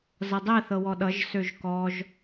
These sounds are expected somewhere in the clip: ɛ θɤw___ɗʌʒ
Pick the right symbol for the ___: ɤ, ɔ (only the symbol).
ɔ